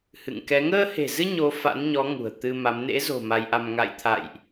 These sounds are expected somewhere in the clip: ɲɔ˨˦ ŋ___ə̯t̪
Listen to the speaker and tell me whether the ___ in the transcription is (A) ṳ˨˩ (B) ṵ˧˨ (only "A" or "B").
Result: A